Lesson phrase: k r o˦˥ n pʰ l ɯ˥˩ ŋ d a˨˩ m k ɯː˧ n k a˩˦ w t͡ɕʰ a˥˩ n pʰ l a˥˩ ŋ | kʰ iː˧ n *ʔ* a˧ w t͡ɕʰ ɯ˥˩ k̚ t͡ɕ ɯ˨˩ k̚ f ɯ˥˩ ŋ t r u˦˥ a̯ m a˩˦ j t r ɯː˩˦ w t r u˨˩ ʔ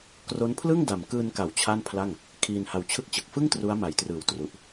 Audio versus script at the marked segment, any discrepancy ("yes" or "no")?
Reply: yes